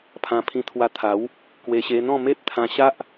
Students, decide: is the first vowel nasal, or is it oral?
nasal